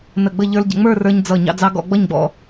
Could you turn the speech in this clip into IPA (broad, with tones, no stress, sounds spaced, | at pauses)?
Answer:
n ə˧˩ ɡ͡b ə˥˧ ʎ ə˞˧ l ɟ ə̰˩˧ ŋ͡m ə˞˥˧ r ə˞˧ ɲ d͡z ʌ˧˩ ɲ ɑ̰˧ d͡z ɑ˧ ɡ ɔ̰˥˧ ɡ͡b ʌ˥˧ ɲ ɡ͡b ɔ̰˧